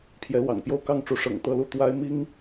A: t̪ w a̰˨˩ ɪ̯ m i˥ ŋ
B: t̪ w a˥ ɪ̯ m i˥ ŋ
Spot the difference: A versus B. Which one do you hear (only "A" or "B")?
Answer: B